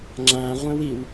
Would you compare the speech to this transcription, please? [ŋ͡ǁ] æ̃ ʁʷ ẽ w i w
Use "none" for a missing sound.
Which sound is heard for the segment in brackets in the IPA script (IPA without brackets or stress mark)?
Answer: ŋ͡ǁ